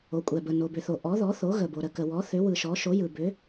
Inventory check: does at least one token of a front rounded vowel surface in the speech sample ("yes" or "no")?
yes